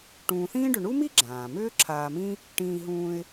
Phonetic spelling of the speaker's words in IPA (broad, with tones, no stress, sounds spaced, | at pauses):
ʈ ũː˨ θ ĩː˥ ɖ ʏ˨ ɳ u˥ m i˥ ɡ͡ǁ ãː˩ m ʏː˥ ǁʰ aː˨ m ĩ˦ | ʈ ĩː˨ ɦ ũː˨ ɪ̯